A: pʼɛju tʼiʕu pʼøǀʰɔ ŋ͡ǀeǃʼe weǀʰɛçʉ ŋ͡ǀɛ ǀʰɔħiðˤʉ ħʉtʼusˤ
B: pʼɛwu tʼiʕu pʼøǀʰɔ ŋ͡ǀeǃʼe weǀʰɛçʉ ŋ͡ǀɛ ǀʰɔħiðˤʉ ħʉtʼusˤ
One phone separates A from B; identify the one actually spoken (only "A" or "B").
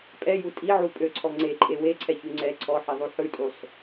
A